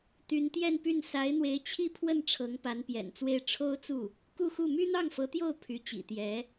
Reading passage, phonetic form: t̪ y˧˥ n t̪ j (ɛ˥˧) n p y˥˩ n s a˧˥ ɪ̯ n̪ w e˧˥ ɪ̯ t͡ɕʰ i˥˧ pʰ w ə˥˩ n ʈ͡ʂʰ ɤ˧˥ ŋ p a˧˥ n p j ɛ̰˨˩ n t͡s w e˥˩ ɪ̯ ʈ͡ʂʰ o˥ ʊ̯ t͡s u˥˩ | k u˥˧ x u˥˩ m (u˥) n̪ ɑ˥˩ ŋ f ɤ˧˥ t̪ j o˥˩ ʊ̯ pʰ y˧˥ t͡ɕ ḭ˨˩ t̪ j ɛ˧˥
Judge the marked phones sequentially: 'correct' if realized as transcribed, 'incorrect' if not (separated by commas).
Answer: correct, incorrect